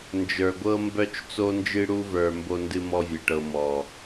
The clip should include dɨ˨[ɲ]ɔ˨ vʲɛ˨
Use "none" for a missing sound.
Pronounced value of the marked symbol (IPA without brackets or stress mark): m